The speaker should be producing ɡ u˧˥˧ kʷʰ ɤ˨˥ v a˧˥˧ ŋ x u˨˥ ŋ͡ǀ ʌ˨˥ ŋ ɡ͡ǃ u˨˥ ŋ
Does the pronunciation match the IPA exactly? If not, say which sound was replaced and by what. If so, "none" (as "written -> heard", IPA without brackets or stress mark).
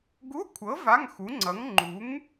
ɡ͡ǃ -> ŋ͡ǃ